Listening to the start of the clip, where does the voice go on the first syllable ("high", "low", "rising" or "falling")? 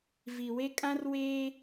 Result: low